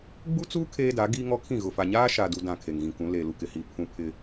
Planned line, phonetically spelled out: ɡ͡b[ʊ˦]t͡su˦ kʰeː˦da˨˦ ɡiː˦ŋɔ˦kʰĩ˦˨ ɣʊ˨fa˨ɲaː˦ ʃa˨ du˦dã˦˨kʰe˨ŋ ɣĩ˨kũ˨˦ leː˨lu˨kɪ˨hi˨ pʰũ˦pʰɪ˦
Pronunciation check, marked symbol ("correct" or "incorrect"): incorrect